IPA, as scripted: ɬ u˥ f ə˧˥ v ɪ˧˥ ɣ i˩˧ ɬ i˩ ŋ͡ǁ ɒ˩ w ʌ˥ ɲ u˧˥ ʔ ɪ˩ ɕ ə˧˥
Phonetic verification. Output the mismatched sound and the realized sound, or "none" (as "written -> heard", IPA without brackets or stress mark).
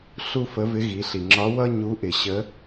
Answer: ɒ˩ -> ɒ˧˥